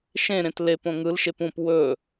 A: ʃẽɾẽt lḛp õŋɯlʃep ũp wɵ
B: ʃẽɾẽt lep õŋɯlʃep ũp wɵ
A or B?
B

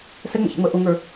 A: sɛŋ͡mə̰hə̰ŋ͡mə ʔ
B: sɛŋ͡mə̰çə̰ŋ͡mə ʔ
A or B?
B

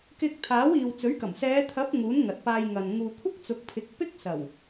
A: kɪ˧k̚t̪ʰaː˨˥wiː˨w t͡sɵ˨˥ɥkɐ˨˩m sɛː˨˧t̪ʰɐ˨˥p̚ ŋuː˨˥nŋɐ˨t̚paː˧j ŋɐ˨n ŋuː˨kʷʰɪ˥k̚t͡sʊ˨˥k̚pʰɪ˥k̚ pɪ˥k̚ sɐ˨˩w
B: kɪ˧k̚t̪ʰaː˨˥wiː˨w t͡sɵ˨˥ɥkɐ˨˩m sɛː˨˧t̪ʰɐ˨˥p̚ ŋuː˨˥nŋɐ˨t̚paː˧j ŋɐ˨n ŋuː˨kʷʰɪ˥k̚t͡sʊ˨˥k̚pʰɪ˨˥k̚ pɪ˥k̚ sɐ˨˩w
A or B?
B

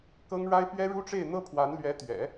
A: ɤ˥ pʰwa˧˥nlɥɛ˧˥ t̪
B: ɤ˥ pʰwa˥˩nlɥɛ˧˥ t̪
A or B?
A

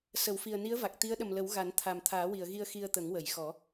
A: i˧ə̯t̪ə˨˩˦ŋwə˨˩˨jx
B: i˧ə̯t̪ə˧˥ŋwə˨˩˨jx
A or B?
A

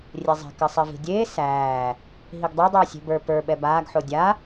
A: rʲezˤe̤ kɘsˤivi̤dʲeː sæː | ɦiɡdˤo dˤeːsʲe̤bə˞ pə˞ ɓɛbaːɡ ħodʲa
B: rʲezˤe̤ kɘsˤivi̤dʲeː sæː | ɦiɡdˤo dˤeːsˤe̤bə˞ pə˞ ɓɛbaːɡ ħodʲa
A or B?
A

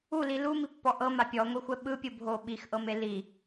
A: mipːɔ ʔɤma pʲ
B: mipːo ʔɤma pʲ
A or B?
A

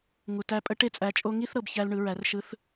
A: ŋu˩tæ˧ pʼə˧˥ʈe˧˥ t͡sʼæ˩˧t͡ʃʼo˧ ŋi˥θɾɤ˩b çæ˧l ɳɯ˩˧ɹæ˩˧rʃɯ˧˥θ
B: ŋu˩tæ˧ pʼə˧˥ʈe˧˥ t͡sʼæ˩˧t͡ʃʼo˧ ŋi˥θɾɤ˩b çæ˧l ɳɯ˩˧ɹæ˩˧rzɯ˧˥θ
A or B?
A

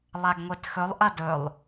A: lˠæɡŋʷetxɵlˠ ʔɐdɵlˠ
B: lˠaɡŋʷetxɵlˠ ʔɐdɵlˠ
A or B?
B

